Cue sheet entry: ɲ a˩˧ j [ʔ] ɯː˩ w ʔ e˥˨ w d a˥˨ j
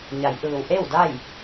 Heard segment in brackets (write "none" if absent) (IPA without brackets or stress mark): ʔ